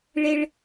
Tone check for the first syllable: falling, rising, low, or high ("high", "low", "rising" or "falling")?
low